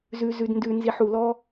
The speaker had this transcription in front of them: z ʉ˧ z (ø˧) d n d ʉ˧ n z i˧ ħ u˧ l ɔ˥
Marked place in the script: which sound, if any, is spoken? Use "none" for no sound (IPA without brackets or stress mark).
ʉ˧